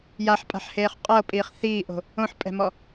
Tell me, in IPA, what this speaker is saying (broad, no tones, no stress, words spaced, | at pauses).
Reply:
jaħpʼa̤ħheːχ qʼɤpʼiːχ θiːʔo̤ | õħpʼɛ̤mɔ